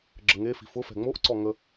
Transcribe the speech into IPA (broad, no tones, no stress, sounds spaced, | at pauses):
ɡ͡ǁ ə ŋ e f i̤ f ʊ f ɛ̤ ŋ͡m o ʔ ǀ ɔ ŋ ə